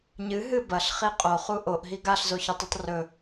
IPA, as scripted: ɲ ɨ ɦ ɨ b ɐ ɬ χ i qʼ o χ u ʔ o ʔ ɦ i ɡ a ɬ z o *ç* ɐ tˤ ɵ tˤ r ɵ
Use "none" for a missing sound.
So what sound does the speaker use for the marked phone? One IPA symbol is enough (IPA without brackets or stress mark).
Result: ç